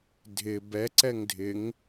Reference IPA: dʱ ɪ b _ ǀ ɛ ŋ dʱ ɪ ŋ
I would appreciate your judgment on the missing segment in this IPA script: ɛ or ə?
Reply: ɛ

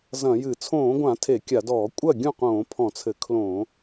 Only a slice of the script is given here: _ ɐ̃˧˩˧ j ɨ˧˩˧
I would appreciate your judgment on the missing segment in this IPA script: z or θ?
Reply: z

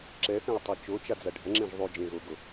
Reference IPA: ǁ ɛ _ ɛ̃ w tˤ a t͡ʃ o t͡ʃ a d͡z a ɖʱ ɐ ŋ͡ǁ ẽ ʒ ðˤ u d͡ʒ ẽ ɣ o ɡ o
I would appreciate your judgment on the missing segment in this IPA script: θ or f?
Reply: θ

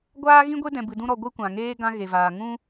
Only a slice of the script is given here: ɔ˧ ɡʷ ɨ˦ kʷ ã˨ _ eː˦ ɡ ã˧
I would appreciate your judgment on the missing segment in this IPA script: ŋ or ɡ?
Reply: ŋ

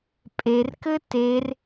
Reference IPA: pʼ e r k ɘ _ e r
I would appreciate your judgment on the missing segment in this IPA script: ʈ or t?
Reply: t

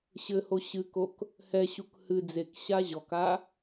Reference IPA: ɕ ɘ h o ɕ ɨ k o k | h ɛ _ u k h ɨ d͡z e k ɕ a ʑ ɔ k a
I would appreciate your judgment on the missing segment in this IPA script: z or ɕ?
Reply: ɕ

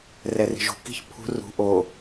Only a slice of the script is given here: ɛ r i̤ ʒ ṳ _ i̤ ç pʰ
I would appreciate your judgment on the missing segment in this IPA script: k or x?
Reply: k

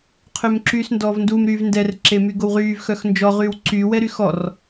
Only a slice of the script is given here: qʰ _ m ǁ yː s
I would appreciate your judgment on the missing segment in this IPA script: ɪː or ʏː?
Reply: ʏː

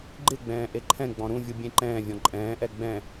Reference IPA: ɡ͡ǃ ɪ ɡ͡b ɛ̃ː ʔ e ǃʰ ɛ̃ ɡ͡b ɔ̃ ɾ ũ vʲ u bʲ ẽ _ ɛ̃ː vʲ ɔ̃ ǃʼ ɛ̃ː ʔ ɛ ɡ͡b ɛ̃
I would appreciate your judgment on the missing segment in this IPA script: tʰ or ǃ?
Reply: ǃ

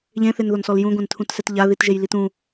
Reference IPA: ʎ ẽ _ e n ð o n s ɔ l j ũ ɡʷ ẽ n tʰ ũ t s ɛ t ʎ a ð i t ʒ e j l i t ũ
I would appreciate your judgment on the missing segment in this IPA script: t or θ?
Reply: θ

